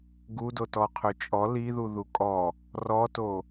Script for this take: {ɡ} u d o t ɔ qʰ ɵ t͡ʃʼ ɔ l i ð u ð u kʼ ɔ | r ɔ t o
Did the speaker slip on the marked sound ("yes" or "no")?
no